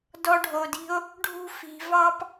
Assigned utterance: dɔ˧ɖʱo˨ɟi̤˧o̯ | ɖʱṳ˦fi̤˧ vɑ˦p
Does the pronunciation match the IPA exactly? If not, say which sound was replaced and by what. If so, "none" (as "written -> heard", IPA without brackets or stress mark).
ɟ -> d